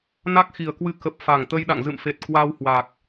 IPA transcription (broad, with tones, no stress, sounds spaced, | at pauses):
n a˦˥ k̚ x i˨˩ ə̯ k w ɨ˧ k ə˨˩ p̚ f a˨˩ ŋ t̪ ə˧ j ɗ a̰˧˨ ŋ z ɨ̰˧˨ m f e˨˩ t̚ k w a˧ w h w a˨˩ k̚